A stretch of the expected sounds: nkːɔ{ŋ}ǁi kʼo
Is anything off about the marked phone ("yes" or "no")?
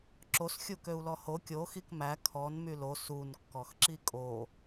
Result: yes